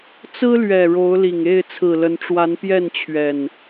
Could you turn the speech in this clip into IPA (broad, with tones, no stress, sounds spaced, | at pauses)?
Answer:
t͡s ɹ̩˦ l ɥ ɛ˨˩ ɻ o˨˦ ʊ̯ l i˨˩ ŋ e˥˨ ɪ̯ t͡sʰ ɹ̩˨˩ l ə˨˦ n ʈ͡ʂ w a˨˦ n p j ɛ˥˨ n t͡ɕʰ ɥ ɛ˨˩ n